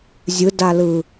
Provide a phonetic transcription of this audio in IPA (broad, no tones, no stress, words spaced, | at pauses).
zʲɯdalɯ